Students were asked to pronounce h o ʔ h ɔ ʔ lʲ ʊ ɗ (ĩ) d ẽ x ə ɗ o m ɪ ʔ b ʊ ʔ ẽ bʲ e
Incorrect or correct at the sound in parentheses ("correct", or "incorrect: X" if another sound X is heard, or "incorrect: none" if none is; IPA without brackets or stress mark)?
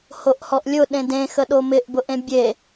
incorrect: ẽ